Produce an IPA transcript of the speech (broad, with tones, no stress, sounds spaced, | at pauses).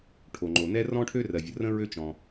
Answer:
ʈʰ o˩ ŋ͡ǃ o˩ n ɛ˥ r ɔ̃˥ ʈʰ ø˥ r ɜ˩ vʲ ə˩ r ə̃˥ ɹ ø˥ t͡ʃ ɔ̃˩